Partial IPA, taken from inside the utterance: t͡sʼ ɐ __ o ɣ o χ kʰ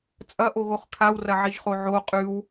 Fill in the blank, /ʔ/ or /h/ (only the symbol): ʔ